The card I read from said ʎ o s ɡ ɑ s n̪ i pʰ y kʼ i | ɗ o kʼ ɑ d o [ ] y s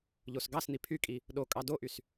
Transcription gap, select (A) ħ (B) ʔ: B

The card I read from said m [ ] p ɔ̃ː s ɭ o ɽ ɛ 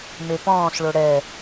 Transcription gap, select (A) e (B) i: A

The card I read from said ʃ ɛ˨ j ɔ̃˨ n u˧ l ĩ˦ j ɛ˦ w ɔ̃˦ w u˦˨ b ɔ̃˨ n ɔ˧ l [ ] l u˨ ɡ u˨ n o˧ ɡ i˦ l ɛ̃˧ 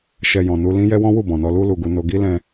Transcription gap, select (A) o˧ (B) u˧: B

